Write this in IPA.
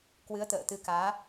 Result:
kwɨ˨˦ə̯t̪ə̰ː˧˨t̪ɨ˨˦ kaː˨˦

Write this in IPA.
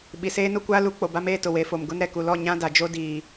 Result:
ɓi˨seː˦nʊ˦ kʷaː˦lu˨˦ k͡po˨ba˦meː˦tʊ˨ we˨˦fo˨m ɡʊ˦nɾɛ˨ku˨ lɔ˦˨ɲã˦ da˨d͡ʒo˦ diː˨

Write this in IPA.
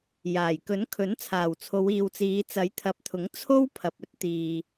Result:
jaː˨˩jkɵ˨˥nkʰɵ˨˥n t͡sʰaː˨˩wt͡sʰo˨˧wiː˨wt͡siː˨˧ t͡sɐ˨˥jt̪ʰɐ˨˥p̚t̪ʰʊ˨˥ŋ t͡sʰo˥wpʰɐ˨p̚ɵ˥t̚t̪iː˨

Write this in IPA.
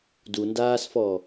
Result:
dundaːsfɔ

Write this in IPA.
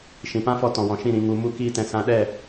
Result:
ʃĩ˨pã˦fɔ˧ tɔ̃˨wɔ̃˨ʃĩ˦˨ ɾĩ˨ ŋu˨mu˧ kiː˧tɛ̃˨ sã˧ɗɛ˦˨

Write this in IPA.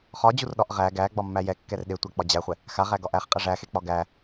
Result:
χɒd͡ʑurɗɒʔ ʁæ ɡæɡ͡bɒmːæ jɛkːɛr ɗetʷæk͡pɒ d͡ʑæχʷɛ | xaʁæɡɒʔ æχqʼæ ʐæxek͡pɒ ɡæ

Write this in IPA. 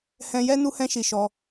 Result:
hɛ̃˦ jɛ˦ nu˦hɛ̃˦ʃi˧ ʃɔ˦

